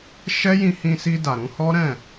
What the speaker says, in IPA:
ʃ ɛ˦ j ĩ˧ h ĩ˧ s i˧ d a˨ ɾ ũ˧ h ɔ˦ ɾ ɛ̃˦˨

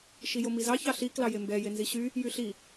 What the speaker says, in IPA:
ʃ i j o m i z ɑ ç ɑ ɬ i k l ɑ j e m b ɛ j e n z i ɕ y | j y ɬ i

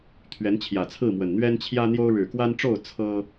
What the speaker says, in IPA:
t̪ʰ ɥ ɛ˨˦ n t͡ɕʰ j ä˨˩ t͡sʰ ɹ̩˥˨ m w ə˨˩ n n̪ ɥ ɛ˦ n t͡ɕʰ j ä˦ n̪ j o˦ ʊ̯ ɻ ɻ̩˨˩ k w a˦ n ʈ͡ʂ o˥˨ ʊ̯ t͡sʰ ɤ˦

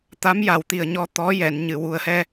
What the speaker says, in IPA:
t̪ a˧˥ m j a˨˩ w t̪ i˨˩ ə̯ ɲ ɔ˧ t̪ ɔ˧˥ j ɛ˨˩˨ n ɲ ɨ˨˩˨ w u˨˩ ə̯ h ɛ˧

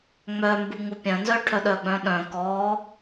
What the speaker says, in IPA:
ŋ͡m œ m b u ŋ u pʲ œ̃ n z œ ʈʰ œ ɗ œ ɡ͡b œ̃ ɗ œ̃ k ɔ

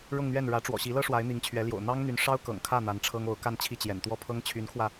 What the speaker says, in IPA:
ɻ ʊ˥˧ ŋ n̪ ɥ ɛ˥˩ n ɻ ä˧˥ ʈ͡ʂ w ɔ̰˨˩ ɕ i˧˥ l ɤ˥ ʂ w a˧˥ ɪ̯ n̪ i˧˥ ŋ t͡ɕʰ ɥ ɛ˧˥ l j o̰˨˩ ʊ̯ n̪ ɑ˥ ŋ n̪ y˧˥ n ʂ ɑ˥ ʊ̯ k ɤ̰˨˩ ŋ kʰ ä˥˩ n̪ a˧˥ n ʈ͡ʂʰ ɤ˥ ŋ o˧˥ ʊ̯ k a˥˧ n t͡ɕʰ i˥˩ t͡ɕ j ɛ̰˨˩ n t̪ w ɔ˥˩ pʰ ɤ˥ ŋ t͡ɕʰ y˧˥ n kʰ w ä˧

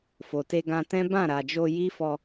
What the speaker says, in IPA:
f o˨ t e˧ ɡ ã˧ t ɛ̃˦ b ã˦˨ ɾ a˨ d͡ʒ o˧ j i˦ f ɔ˧

